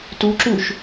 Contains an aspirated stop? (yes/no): no